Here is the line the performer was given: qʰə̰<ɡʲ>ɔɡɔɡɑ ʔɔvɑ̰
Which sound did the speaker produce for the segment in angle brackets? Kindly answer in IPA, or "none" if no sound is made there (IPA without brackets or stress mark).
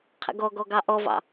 ɡ